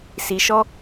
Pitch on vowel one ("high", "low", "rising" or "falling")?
low